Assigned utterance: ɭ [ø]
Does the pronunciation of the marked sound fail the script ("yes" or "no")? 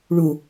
yes